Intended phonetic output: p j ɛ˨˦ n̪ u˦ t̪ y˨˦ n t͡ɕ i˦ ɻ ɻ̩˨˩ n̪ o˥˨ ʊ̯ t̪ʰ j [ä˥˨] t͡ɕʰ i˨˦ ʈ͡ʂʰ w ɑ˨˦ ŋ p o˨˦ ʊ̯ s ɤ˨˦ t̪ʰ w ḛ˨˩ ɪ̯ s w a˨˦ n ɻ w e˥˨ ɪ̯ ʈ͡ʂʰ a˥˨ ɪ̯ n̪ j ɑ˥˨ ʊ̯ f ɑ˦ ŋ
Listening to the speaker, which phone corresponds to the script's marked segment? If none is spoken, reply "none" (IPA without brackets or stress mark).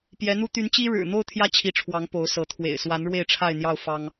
ä˦